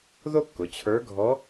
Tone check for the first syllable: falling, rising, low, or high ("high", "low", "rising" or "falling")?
high